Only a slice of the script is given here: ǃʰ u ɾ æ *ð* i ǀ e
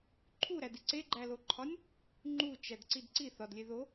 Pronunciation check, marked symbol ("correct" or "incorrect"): incorrect